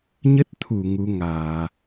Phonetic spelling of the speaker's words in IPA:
ɲ ə˦˥ t̚ t̪ʰ u˧˩ ŋ u˨˦ ŋ aː˧˩˨

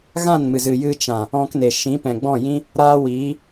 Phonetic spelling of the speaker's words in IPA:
ɣ ã˦˨ n m ɨ˨ z ɨ˨ j ɨ˧ t͡ʃ ã˨ | ɔ̃˧ k n e˨ ʃ ĩ˨˦ p ɛ̃˨ ɡ͡b ɔ̃˦˨ j ĩ˦ | ɾ aː˦ w iː˨˦

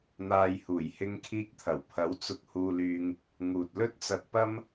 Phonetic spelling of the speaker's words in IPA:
n̪ aː˨ j h uː˨˩ j h ɪ˧ ŋ kʰ iː˧ k̚ t̪ʰ ɐ˨˩ w pʰ ɐ˨˥ w t͡s ʊ˧ k̚ h uː˧ l yː˧ ŋ | ŋ uː˨ t̚ l ɵ˥ t̚ t͡s ɐ˧ t̚ p ɐ˥ m

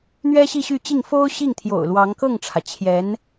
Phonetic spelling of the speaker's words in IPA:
n̪ ɥ ɛ˥ ɕ i˥˧ ɕ y˥˧ t͡ɕ i˥˩ ŋ f o˥ ʊ̯ ɕ i˥˩ ŋ t̪ʰ j o̰˨˩ ʊ̯ l w ɑ˧˥ ŋ k ɤ˥˩ ŋ ʈ͡ʂʰ ä˩ t͡ɕʰ j ɛ˧˥ n

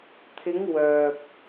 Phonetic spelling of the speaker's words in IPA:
t̪ʰ ɪ˨˧ ŋ w œː˨ p̚

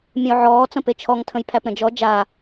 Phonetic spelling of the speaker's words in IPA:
mʲ ə̃ ʊ̯ ʕ ɔː t͡s ə̃ p e t͡ʃʰ ɔ ŋ tʰ ə̃ j pʰ æ p ɾ ə̃ d͡ʒ ɔ d͡ʒ a

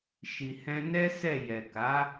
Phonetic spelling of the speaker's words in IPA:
ʃ i˨ h ɛ̃˧ n ɛ˦ s ɛ˦˨ j ɛ˨ k a˨˦

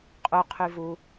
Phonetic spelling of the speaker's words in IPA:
qʼ u qʰ y v u

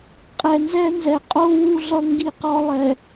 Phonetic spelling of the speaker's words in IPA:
qʼ ɛ˨ n z ɛ˦ n z ɛ˨ qʼ o˦ w u˦ ɮ ʌ˦ ŋ ɡ i˦ q ɔ˦ lˠ ɛ˨

